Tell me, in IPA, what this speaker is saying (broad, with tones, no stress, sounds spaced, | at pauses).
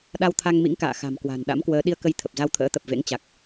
ɗ a˧ w t̪ʰ a˧ ŋ m ḭ˧˥ ŋ k a̰ː˧˨ x a̤˨˩ m k w a̤˨˩ n ɗ a̰˧˥ m k w əː˨˦ ɗ i˧ ə̯ k ə˧ j t̪ʰ ə˨˩ p̚ z a˧ w t̪ʰ ə̰ː˧˥ t̪ ə˨˩ p̚ v ḛ˧˥ ŋ t͡ɕ a˨˩ k̚